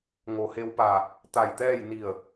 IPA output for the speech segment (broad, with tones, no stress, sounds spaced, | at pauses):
ŋ o˩ h e˧ w p a˧˩ | t̪ a˧˩ j t̪ ɛː˥˨ j n i˧˩ ə̯